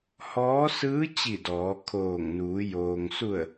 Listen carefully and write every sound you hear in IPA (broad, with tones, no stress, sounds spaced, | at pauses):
h ɔː˧˥ s ɯː˧˥ t͡ɕ i˧˩ d ɔː˩˧ kʰ oː˧˩ ŋ n uː˩˧ j oː˩ ŋ s u˧˩ ə̯